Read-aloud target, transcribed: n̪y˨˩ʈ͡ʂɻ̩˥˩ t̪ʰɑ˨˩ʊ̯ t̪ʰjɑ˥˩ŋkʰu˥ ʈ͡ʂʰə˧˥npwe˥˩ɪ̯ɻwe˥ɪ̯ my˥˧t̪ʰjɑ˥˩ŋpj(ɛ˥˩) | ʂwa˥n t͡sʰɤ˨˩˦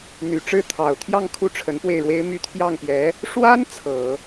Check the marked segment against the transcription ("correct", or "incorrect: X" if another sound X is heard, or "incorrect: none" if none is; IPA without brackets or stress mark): incorrect: ɛ˧˥